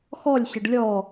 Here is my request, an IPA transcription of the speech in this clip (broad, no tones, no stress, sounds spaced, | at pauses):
x ɔ lʲ ɕ ə ɖ lʲ ɔ